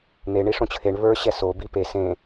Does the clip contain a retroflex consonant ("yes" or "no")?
yes